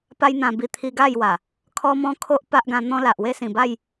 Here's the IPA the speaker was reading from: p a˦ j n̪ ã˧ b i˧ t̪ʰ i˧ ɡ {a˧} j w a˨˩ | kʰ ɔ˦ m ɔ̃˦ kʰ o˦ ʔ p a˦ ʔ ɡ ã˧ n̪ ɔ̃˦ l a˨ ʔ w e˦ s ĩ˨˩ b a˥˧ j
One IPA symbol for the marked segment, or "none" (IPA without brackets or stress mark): a˥˧